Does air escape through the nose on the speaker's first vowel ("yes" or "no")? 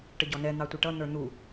no